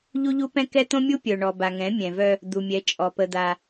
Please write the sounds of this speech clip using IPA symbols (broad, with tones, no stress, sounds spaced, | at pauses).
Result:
ʎ u˦ ʎ u˦ p ɛ̃˦ k ɛ˦ t̪ õ˦ mʲ u˦ pʲ œ˨ ɳ ɔ˨ b a˨ ŋ ɛ̃˨˦ mʲ ɛ̃˨ v œ˦ | d̪ u˨ mʲ ɛ˨˦ t͡ʃʼ ɔ˨ p ə˦ d̪ a˦